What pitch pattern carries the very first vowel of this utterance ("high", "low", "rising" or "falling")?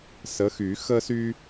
rising